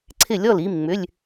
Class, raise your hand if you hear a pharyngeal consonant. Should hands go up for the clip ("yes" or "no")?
no